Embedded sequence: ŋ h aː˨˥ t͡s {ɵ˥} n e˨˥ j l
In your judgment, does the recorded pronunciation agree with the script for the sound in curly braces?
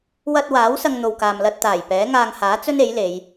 yes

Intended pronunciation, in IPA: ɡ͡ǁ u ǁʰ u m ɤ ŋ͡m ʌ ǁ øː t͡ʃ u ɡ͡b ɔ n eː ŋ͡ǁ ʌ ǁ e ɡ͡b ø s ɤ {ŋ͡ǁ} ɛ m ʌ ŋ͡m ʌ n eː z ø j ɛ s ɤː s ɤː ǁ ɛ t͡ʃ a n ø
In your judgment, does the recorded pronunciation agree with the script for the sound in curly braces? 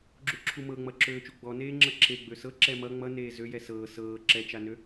no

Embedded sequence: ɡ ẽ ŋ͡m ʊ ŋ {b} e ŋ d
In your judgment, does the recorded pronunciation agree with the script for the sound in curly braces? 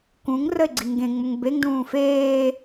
yes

